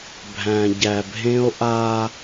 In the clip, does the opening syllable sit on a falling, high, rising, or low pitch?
low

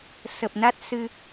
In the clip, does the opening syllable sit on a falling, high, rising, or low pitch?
low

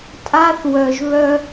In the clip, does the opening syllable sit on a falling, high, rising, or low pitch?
high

